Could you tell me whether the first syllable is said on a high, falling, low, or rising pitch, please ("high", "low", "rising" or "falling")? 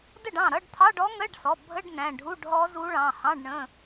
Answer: falling